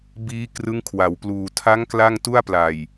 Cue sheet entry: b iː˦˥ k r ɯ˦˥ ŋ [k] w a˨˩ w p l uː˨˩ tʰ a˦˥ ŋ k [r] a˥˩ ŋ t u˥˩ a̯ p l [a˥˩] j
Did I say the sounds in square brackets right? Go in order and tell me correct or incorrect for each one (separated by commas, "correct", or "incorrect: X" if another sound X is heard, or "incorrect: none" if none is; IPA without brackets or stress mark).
incorrect: kʰ, incorrect: l, incorrect: a˨˩